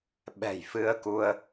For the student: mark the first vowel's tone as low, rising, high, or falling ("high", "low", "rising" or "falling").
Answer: low